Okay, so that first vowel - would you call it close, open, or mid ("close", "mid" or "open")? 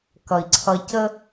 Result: mid